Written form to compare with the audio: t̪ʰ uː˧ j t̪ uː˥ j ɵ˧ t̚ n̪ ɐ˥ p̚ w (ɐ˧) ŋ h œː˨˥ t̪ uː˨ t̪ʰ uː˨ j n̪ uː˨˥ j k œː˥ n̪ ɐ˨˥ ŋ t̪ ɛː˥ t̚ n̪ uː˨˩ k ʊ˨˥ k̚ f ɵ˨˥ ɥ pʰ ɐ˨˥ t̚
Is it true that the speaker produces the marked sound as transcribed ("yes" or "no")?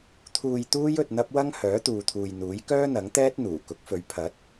no